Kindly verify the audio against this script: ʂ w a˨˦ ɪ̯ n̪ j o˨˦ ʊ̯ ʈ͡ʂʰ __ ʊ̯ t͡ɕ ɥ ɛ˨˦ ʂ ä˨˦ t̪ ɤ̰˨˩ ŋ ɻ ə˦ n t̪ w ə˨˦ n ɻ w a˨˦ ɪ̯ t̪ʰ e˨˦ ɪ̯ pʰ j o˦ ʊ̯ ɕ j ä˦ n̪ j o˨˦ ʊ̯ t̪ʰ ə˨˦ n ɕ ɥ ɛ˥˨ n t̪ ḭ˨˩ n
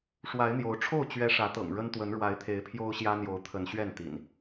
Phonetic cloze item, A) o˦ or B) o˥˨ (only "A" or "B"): B